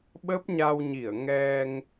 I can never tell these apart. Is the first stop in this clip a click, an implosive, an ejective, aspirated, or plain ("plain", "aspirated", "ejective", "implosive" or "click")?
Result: implosive